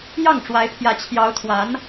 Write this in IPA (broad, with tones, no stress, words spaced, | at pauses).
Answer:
jɑ˥˩ŋ ʈ͡ʂwa˧˥ɪ̯pʰjä˧˥ t͡ɕʰjɑ˧˥ʊ̯t̪ʰwa˧˥n